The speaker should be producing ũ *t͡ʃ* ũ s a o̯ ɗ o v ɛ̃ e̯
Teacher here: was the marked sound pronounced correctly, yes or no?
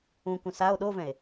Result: no